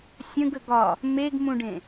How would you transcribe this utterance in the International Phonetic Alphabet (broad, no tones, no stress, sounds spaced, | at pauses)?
sʲ ə̃ ɡ ə ɡ ɒ | m e ɡ m ũ ɖ ẽ